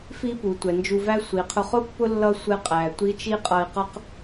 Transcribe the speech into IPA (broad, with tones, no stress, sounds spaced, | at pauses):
f i˥ p u˩˧ tʷ ɛ˩˧ n d͡ʒ u˧ v æ˥ sʷ i˩˧ qʰ ʊ˧ χ ʊ˥ pː ʊ˥ lː ʌ˥ sʷ ɛ˧ qʼ æ˩ tʷ i˧˥ t͡ʃ i˥ qʼ ʌ˧ i̯ q ʌ˥ q